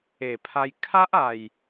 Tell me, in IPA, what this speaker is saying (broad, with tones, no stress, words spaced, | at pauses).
e˨˩pʰa˧j kʰa˦ʔa˨˩j